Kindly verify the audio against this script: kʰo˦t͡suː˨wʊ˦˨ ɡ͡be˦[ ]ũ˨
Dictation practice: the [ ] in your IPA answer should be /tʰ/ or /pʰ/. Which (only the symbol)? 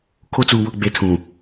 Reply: tʰ